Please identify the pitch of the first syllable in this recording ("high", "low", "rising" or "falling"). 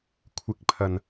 rising